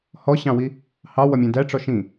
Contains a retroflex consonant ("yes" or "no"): yes